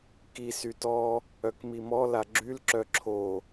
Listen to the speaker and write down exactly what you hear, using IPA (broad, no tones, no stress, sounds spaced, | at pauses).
k i s y t ɔ | œ k m i m ɔ l a ɡ͡ǁ y l ǁ œ ǁʰ o